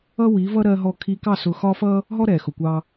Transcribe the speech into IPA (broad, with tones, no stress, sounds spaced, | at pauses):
ʌ˦ w i˨˦ v ʌ˦ ɾ ɜ˧ ɦ ɔ˧ kʰ i˧ k ɑ˦˨ s ʊ˧ x ɒ˦ f ʌ˦ | ɦ ɔ˦ ɾ ɛ˨ x ʊ˨ kʷ ɑ˧